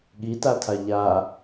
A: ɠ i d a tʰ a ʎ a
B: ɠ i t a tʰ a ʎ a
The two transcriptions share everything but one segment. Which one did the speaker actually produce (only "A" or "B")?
B